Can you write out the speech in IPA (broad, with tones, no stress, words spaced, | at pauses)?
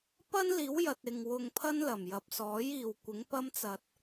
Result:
pɐ˥nliː˨˥wjɐ˨t̚ ɪ˨ŋwʊ˧ŋpʰɐ˥nlɐ˨˩m jɐ˨p̚sɔː˨˥j iː˨wkʷɪ˨˥ŋpɐ˥mt͡sɐ˧t̚